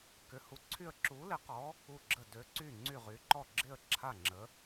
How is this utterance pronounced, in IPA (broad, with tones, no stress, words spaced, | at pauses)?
kʏ˨˥hu˨˥ǀʰy˥˩ə̯ ǁu˨˥lɪ˨˥qɔ˨˥ | u˥˩ɡ͡ǁə˥˩ dø˨˥ ǀy˥˩ŋ͡ǀy˥˩ʁy˨˥ǃɔ˥˩ ɡ͡ǁɪ˥˩ə̯ ǁʰa˥˩ŋ͡ǁə˨˥